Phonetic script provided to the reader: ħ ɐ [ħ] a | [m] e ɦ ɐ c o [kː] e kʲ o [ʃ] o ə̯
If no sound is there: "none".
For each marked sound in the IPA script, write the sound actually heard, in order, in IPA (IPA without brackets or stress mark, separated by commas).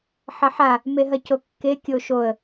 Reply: ħ, m, kː, ʃ